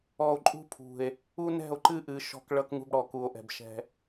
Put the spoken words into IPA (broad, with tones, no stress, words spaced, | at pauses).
ɔ˨o̯ǃʼṳ˦pʰṳ˨e̯ | u˦nɛ̤˦˨o̯ ǃɨ˦ʔɨ˨ ʃɔ̤˦k ɭʌ˦kŋṳ˦bɽɔ˨ ku˨o̯ʔɛ̤˨bʃɛ̤˦